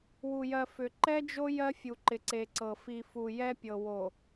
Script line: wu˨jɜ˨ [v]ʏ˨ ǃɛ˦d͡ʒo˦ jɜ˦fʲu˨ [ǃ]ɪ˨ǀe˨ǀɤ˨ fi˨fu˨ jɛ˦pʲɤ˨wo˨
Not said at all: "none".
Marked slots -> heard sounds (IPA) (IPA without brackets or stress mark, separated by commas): f, ǃ